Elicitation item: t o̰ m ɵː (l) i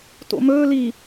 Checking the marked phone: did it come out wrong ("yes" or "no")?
no